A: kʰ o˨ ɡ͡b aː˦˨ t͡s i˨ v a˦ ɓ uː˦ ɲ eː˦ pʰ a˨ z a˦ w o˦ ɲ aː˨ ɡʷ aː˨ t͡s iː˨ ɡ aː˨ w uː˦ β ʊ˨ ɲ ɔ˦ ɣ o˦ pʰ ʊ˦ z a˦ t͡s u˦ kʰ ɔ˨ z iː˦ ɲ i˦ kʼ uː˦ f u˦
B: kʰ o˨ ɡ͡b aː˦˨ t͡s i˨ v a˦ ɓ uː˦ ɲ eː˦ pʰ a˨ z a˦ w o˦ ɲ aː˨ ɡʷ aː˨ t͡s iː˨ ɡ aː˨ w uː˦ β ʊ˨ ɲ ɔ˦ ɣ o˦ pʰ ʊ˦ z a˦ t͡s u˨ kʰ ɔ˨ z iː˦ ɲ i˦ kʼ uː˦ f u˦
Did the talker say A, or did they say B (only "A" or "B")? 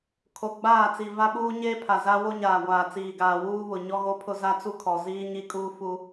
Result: A